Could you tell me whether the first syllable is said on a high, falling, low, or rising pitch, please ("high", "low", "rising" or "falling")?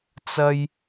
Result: high